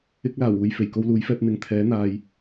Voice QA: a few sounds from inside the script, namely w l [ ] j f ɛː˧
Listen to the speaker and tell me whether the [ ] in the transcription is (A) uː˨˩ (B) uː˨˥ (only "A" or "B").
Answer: B